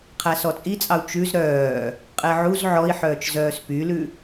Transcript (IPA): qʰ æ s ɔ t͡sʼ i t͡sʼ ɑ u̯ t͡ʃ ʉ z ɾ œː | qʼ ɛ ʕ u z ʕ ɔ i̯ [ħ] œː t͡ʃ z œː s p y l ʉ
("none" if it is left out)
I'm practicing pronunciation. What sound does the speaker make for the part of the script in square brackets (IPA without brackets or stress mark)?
ħ